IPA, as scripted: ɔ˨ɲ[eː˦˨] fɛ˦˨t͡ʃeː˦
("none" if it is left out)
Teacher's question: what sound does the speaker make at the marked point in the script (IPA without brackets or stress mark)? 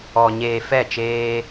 eː˨